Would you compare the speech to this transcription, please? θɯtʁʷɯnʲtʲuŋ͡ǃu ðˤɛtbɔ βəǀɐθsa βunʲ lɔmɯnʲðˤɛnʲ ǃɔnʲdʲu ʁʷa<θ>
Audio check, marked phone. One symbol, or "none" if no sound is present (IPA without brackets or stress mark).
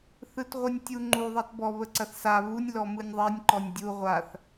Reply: θ